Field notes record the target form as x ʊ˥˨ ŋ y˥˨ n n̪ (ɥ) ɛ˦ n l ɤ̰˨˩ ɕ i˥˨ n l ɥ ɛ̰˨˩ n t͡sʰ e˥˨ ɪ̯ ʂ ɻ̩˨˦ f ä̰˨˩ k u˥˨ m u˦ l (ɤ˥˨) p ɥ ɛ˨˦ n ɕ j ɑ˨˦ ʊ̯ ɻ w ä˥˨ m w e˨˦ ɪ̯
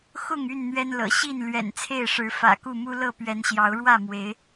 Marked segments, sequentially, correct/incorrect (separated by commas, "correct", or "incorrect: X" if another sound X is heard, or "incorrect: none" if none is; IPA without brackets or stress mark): correct, correct